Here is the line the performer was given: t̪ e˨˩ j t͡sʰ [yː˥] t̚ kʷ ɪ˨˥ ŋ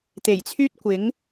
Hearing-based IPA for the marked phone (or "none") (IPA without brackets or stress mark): yː˥